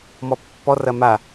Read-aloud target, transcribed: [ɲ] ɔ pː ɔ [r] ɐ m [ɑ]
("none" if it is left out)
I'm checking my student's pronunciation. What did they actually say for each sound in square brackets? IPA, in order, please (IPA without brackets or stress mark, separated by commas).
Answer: m, r, a